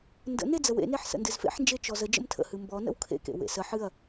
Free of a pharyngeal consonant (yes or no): no